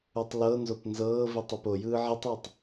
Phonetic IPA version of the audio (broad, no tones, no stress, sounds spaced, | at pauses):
u tˤ l ɤ n z o p n z ɤː v i tˤ i p o j ɯː ʕ i tˤ w ɯ tˤ